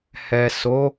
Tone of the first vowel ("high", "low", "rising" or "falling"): low